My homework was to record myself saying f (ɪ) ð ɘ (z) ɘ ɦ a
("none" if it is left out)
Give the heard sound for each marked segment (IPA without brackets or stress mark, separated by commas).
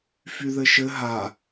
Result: y, ʃ